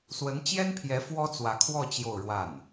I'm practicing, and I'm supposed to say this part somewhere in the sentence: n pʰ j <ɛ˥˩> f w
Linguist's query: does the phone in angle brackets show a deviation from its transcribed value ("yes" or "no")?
yes